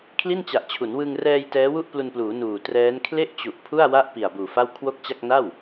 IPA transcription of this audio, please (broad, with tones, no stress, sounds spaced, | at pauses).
kʰ l i˥˩ n t͡ɕ a˨˩ ʔ t͡ɕʰ u˩˦ n w ɯ˧ ŋ r ɛː˧ j t ɛː˦˥ w u˥˩ ʔ p l u˧ n p l uː˩˦ n uː˨˩ t r ɛː˦˥ n kʰ l e˥˩ ʔ t͡ɕ u˨˩ ʔ pʰ u˥˩ a̯ w a˥˩ ʔ p i˨˩ a̯ b uː˨˩ f a˥˩ w kʰ w o˥˩ k̚ t͡ɕ a˥˩ k̚ n a˥˩ w